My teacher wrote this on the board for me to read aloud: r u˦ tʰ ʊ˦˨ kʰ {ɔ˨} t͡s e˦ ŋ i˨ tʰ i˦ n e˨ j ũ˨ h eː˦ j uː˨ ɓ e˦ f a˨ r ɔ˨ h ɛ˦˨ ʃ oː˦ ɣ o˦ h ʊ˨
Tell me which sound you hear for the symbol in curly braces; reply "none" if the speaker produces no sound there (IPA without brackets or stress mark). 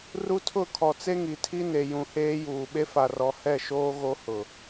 ɔ˨